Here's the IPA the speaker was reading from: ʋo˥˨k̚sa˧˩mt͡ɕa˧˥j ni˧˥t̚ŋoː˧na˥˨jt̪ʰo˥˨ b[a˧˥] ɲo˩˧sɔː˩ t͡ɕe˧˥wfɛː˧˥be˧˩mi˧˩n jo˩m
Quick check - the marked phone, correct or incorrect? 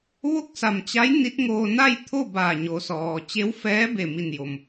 incorrect